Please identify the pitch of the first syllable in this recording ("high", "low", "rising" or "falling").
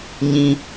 high